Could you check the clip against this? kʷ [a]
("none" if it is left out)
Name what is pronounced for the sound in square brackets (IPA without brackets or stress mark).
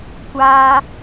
a